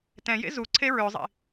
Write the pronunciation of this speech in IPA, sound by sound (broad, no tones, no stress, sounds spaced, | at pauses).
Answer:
t ɛ̃ j ḛ z u ǀʰ e ɹ ø zˤ ḭ